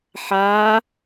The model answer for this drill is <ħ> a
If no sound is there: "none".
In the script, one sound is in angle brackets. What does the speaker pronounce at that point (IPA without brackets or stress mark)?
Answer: ħ